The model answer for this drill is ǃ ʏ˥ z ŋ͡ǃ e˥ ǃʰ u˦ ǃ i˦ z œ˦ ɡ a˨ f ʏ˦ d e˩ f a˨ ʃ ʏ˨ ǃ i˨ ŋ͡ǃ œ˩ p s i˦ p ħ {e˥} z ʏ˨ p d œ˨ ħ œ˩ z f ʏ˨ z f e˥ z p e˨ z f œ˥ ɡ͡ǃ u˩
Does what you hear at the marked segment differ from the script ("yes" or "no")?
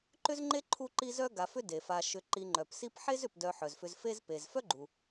no